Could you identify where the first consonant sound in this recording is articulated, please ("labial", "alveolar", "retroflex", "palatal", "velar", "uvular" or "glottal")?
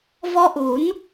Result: labial